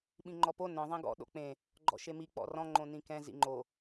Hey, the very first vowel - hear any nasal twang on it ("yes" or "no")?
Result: yes